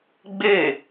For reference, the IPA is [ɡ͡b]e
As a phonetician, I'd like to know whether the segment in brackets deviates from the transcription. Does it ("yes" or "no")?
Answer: no